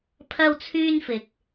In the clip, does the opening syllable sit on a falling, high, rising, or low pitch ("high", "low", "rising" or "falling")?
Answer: high